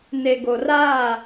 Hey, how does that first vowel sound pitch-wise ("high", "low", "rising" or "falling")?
low